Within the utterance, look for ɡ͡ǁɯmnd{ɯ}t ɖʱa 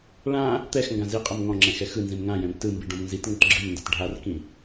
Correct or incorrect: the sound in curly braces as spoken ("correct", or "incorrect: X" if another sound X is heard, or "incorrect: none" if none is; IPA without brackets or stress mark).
incorrect: ɤ